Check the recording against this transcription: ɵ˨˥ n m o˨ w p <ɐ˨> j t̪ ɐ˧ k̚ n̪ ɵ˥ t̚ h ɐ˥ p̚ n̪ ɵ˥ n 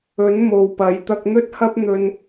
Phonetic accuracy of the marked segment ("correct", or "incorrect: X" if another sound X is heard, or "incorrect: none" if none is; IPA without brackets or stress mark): incorrect: ɐ˨˥